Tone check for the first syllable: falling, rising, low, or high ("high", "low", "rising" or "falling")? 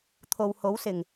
low